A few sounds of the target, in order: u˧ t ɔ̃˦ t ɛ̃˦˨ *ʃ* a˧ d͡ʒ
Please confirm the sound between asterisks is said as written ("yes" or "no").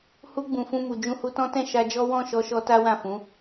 yes